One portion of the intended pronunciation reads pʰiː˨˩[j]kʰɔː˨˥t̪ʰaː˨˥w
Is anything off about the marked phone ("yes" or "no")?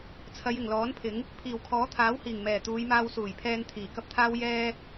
yes